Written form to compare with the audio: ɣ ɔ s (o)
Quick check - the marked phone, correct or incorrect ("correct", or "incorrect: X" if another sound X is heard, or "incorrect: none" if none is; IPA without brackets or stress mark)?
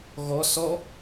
incorrect: ɔ